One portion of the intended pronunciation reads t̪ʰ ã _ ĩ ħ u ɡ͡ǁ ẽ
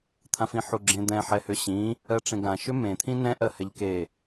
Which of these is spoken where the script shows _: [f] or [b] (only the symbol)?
f